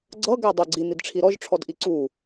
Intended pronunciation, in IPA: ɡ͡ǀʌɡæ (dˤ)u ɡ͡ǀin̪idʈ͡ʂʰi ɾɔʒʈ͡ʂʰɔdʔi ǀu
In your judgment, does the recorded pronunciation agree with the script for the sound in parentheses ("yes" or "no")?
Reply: yes